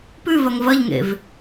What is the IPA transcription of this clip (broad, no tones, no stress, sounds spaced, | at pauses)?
p ʉ v ɐ ŋ v ɐ ʎ ŋ ḛ v